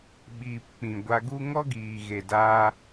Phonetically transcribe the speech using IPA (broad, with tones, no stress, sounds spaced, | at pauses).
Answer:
ɓ iː˨ p k͡p ĩ˨ ɡʷ a˧ ɡ u˦ ŋ ɔ˦ ɡ iː˨ ɣ e˨ d aː˧